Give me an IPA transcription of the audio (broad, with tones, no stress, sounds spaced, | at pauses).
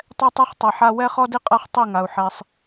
tˤ ɛ˦ tˤ ɛ˦ χ tˤ ɛ˨ ħ a˦ w ɛ˦ χ ɔ˦ d i˦ qʼ a˦ χ tˤ i˦˨ ŋ a˨ u̯ ħ ɛ˦ sˤ